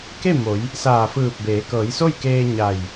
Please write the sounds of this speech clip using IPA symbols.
k e˥˨ m o˩˧ j | s aː˧˩ f ɯː˧˩ p̚ b eː˩˧ k ɤː˩˧ j s o˥˨ j k eː˧ ɲ a˧˩ j

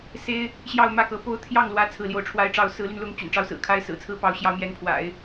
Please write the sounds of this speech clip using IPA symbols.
s e˥ ɪ̯ | ɕ j ɑ˥˧ ʊ̯ m ä˥˩ k ɤ˧˥ p o˥ ʊ̯ t̪ʰ j ɑ˥˩ ŋ l w ä˧˥ t͡sʰ ɹ̩˥˧ l j o˥˩ ʊ̯ ʈ͡ʂʰ w a˥ ɪ̯ ʈ͡ʂ ɑ˥ ʊ̯ s ɹ̩˧˥ l y˧ n l ʊ˧˥ ŋ t͡ɕ y̰˨˩ n ʈ͡ʂ ɑ˥˩ ʊ̯ s ɹ̩˨˩ kʰ a˥ ɪ̯ s ɹ̩˨˩ t͡sʰ ɹ̩˥ p ɑ˧˥ ʊ̯ ɕ j ɑ˥ ʊ̯ m j ɛ˧˥ n pʰ w a̰˨˩˦ ɪ̯

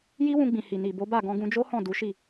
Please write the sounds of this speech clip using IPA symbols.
j i˦ w ũ˧ ɡ͡b ĩ˨ h i˨ n i˨ b o˨˦ b a˦˨ ɡ ɔ̃˧ ɡ ũ˧ d͡ʒ o˦ h ɔ̃˦˨ d u˨˦ ʃ i˦˨

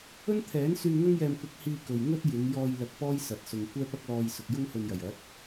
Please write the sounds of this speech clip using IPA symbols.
ɵ˥ n t̪ʰ ɛː˨˥ n s yː˧ ŋ ɐ˥ ŋ j ɛː˧ m kʷ ɐ˧ k̚ h iː˧ k ɵ˨ ɥ ŋ ɵ˥ t̚ j ɪ˨˧ ŋ j ɔː˧ j l ɐ˧ k̚ p ɔː˥ j s ɐ˨ t̚ s ʊ˨ ŋ kʷ ɛː˥ p ɐ˥ k̚ l ɔː˧ j s ʊ˨ k̚ j ʊ˥ ŋ h ɵ˧ n j ɐ˨˩ j ɐ˨˥ t̚

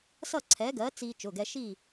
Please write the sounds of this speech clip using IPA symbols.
s ʌ˥˨ ǀʰ ɛ˨˥ ɡ ɜ˨˥ t͡s i˧ t͡ʃ ʊ˩˧˩ ɡ ɛ˧ ʃ i˥˨

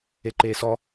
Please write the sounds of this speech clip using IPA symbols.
e ǃ eː s ɔ

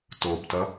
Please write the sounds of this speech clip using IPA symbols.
t o b t ʌ

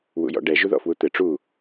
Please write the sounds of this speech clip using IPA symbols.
w ṵ j ɔ̰ ɖ ɛ ʒ u ð ɔ̰ f w u t̪ ɘ ʈ͡ʂ u

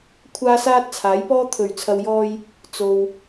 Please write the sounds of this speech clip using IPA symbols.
kʷʰ aː˥ s aː˥ t̚ t͡sʰ aː˨˥ j p ɔː˥ t̪ʰ ɵ˨˩ ɥ t͡sʰ ɐ˨ w j ɔː˧ j | t͡s o˨ w

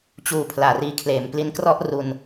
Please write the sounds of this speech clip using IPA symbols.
t͡ɕ uː˨˩ pʰ l aː˨˩ r iː˧ kʰ l eː˩˦ m p l i˦˥ n k r ɔ˥˩ ʔ r u˧ n

